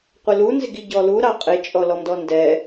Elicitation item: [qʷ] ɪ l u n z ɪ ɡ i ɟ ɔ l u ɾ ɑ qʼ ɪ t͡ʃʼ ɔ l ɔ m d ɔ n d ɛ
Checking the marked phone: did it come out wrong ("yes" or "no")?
no